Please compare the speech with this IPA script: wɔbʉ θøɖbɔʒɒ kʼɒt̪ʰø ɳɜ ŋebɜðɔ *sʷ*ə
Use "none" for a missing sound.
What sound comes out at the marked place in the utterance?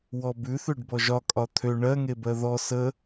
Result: s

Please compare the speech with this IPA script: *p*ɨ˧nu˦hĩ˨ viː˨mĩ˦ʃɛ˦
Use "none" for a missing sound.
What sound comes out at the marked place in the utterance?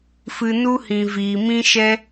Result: f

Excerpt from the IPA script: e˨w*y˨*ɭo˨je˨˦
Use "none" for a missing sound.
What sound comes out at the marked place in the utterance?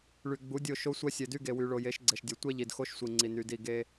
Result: y˨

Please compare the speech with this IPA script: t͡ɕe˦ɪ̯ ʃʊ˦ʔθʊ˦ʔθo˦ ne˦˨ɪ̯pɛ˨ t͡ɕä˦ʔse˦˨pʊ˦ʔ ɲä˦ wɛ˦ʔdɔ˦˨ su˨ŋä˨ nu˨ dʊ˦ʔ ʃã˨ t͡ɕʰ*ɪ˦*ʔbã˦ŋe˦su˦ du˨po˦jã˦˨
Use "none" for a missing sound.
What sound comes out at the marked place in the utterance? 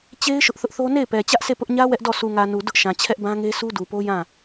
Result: ɛ˦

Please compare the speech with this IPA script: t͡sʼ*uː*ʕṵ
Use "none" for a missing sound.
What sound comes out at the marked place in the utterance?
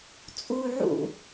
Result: uː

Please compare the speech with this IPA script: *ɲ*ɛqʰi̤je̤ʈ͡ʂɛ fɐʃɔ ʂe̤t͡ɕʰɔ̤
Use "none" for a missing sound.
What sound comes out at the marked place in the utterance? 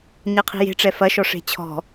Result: ɲ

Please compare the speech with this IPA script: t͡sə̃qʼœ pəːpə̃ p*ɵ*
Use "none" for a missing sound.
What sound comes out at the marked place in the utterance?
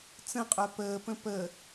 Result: ə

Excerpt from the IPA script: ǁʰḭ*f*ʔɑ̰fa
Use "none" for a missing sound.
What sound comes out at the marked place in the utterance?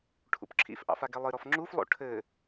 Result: f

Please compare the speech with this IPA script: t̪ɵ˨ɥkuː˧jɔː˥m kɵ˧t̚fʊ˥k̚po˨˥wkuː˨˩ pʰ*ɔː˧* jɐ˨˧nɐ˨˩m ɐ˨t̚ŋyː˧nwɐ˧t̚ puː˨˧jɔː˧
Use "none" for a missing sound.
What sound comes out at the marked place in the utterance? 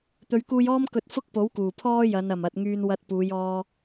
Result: ɔː˥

